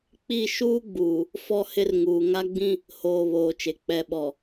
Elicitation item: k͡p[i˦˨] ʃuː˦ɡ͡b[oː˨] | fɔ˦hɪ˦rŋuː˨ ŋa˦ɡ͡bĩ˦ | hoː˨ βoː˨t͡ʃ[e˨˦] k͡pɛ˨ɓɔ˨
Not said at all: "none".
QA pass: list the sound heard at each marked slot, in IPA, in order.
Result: i˦˨, uː˨, e˨

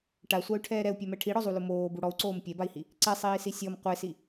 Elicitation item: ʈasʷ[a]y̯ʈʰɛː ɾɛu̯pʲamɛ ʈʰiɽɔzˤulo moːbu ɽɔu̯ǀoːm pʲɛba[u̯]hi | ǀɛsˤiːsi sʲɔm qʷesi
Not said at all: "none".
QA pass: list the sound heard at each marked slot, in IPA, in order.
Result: a, i̯

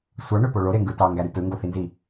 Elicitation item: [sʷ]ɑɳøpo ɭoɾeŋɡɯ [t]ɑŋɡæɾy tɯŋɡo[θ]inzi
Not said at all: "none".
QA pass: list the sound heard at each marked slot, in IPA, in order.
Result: sʷ, t, θ

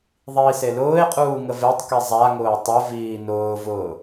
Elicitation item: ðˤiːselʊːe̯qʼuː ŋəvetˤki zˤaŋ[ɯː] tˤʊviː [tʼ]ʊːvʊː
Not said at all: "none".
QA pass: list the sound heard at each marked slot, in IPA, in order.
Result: ʊː, n

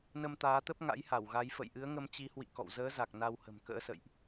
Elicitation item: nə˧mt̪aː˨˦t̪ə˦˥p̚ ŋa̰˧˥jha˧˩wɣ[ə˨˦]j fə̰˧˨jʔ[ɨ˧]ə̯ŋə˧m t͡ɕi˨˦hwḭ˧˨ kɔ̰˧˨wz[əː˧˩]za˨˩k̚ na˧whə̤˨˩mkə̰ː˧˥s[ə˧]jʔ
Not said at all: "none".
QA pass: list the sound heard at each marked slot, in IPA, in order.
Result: a˨˦, ɨ˨˦, əː˨˦, ə̰˧˨

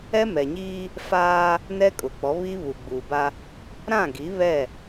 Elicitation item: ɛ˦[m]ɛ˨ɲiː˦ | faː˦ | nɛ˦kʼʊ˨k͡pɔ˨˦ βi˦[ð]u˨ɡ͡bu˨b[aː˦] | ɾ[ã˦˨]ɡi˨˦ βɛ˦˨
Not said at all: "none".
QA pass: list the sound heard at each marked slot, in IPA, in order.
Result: m, β, a˦, ã˦˨

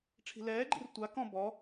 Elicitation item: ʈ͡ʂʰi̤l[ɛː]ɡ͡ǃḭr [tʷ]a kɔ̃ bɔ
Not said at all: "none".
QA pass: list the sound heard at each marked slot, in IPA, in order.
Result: ɛː, tʷ

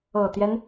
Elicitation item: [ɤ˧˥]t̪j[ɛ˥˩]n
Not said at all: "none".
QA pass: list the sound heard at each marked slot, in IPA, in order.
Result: ɤ˨˩, ɛ˦

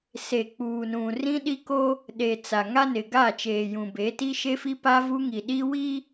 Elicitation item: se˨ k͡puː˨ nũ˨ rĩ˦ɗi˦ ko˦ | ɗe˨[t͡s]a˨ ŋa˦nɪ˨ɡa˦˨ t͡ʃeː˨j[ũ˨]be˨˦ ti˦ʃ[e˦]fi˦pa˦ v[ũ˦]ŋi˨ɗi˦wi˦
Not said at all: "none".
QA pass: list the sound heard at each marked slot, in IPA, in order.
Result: t͡s, ũ˨, e˦, u˦

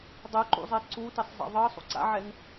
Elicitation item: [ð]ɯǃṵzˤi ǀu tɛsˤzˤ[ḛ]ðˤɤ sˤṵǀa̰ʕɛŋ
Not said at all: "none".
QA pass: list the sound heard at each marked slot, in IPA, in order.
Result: dˤ, ḛ

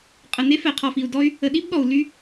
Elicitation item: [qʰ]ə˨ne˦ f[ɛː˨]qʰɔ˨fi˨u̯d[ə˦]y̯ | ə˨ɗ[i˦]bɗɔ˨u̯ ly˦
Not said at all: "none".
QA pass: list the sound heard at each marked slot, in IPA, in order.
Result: qʼ, ɛ˨, ɔ˦, i˦

